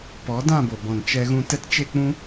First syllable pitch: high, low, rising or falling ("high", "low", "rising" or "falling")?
rising